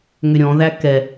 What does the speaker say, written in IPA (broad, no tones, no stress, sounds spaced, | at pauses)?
ŋ ʏ ɾʲ ɔ̃ ð æ k ɛ